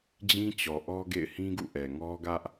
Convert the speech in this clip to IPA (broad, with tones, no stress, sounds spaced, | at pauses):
d͡ʑ ĩ˦ t͡ɕ ɔ˨ ʔ ɔ˦ ɡ ḛ˦˨ ɪ̯ h ĩ˦ ɡ ṵ˦˨ ʔ ɛ˨ ŋ ɔ˦ ɡ ä˦ ʔ